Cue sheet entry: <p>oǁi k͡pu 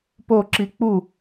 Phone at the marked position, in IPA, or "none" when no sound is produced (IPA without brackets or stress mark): p